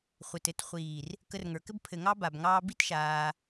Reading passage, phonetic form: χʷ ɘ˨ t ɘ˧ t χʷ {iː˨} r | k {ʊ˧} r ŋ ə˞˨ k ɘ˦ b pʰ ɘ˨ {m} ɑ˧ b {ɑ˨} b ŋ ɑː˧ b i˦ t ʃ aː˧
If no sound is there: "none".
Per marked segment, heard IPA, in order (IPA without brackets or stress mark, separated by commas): iː˨, ə˧, ŋ, a˨